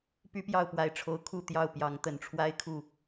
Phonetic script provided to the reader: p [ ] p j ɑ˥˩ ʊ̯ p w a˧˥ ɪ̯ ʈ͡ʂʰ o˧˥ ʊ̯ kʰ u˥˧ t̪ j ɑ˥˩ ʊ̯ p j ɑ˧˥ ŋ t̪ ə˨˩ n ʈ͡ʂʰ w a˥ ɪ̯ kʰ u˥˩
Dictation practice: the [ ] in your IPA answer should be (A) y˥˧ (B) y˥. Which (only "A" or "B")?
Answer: B